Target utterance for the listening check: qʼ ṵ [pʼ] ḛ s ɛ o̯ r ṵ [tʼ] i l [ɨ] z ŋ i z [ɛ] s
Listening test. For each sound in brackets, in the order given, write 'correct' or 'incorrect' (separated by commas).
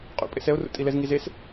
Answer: correct, correct, incorrect, incorrect